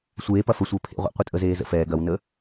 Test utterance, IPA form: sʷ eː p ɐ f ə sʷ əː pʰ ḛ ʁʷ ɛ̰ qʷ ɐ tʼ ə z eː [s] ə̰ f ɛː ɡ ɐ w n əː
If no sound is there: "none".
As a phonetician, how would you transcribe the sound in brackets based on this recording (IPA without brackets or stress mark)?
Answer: z